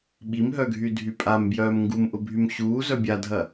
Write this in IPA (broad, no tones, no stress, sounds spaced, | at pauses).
ɓ i m ɦ œ ɡʱ y dʱ y pʼ a m b j œː m ŋ ɡ u m ʔ ʊ bʱ y m ɕ uː z œ bʲ a dʱ ɐ